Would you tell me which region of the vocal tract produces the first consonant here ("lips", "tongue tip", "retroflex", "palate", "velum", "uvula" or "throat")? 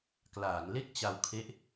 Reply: velum